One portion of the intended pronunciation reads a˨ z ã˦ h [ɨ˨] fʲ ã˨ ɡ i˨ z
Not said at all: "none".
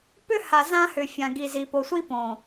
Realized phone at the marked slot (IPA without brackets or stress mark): ʏ˨